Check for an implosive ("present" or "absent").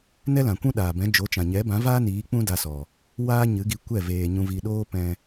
present